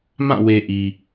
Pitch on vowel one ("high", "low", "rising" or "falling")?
falling